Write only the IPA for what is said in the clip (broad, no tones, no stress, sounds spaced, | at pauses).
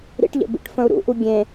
ɾ ḭ ʈ ʎ ə̰ b ḭ ʈ f ə̃ u̯ ɾ ṵ ʔ u ɡʲ ẽ